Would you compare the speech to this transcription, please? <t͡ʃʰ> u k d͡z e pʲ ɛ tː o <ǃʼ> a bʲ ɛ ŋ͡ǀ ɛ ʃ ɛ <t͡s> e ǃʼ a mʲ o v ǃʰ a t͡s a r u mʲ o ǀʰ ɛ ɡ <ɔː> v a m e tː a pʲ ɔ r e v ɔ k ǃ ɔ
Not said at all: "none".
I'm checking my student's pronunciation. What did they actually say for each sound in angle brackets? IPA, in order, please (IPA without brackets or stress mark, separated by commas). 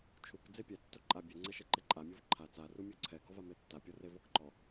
t͡ʃʰ, ǃʼ, ǃ, ɔ